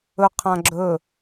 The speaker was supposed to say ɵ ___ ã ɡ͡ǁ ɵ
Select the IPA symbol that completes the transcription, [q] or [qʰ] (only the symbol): qʰ